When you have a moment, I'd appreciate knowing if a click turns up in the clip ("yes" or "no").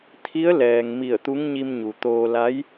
no